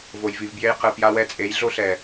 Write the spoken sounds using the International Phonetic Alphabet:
v o˨ j v i˨ v b j e˧ j q ɯ˨ p j a˧ w ɛ˧ t͡sʼ e˨˦ j ɮ o˦ ɬ ɛ˨

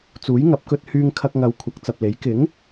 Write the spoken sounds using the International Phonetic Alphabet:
t͡s uː˨˥ j ŋ ɐ˨˥ p̚ k ɵ˧ t̚ h yː˧ ŋ kʰ ɐ˧ k̚ ŋ ɐ˨˧ w kʷʰ ɐ˨˥ k̚ t͡s ɐ˨ p̚ l e˨˥ j k ɪ˨˥ ŋ

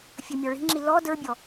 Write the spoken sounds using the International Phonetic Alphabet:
fʲ ɵ mʲ ɔ ɭ i̤ ŋ͡ǁ i l ɔ d ə˞ bʲ ɔ

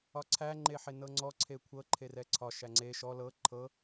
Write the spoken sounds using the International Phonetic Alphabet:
ɒ ǀʰ æ ŋ͡ǃ e ħ e n ɤ ŋ͡ǀ ɔ ǀʰ e kʷʰ ɤ ǃʰ e r ɛ ǀʰ ɒ ʃ æ ŋ͡ǀ e ʃ ɔ l ɤ ǃʰ ɤ

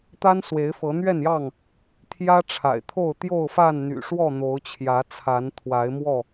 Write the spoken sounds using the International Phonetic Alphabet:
t̪ a˦ n s w e˨˦ ɪ̯ f ɤ˨˦ n̪ ɥ ɛ˥˨ n j ɑ˥˨ ŋ | t̪ʰ j ä˦ ʈ͡ʂʰ a̰˨˩ ɪ̯ t̪ʰ o˥˨ ʊ̯ t̪ j o˥˨ ʊ̯ f a˥˨ n n̪ y̰˨˩ ʂ w ɔ˥˨ n̪ o˨˦ ʊ̯ t͡ɕʰ j ä˨˦ t͡sʰ a˨˦ n t̪ʰ w a˨˦ ɪ̯ m w ɔ˥˨

